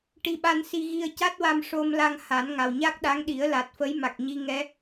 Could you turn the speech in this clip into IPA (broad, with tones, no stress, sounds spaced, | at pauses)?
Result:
ʈ i˧ ɓ a˧ n s i˧ ɣ i˧ ə̯ c a˦˥ t̚ w a˧ m ʂ o˧ m l a˧ ŋ h a˨˩˦ n ŋ a˨˩ w ɲ a˦˥ k̚ ɗ a˧˥ ŋ ɗ i˨˩˦ ə̯ l a˨˩ t̚ f ə˧˥ j m a˨˩ k̚ ɲ i˧ ŋ ɛ˧˥